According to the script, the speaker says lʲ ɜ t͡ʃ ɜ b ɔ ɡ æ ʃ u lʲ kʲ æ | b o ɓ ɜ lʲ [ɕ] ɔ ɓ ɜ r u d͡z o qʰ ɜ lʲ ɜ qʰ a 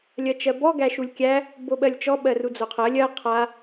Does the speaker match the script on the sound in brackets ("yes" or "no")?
no